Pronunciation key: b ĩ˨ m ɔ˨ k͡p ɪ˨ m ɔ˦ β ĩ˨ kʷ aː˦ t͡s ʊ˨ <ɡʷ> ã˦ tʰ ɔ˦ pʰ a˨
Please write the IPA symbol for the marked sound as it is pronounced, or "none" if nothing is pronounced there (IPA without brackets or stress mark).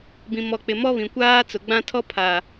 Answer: ɡ͡b